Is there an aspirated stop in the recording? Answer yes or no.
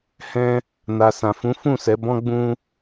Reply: no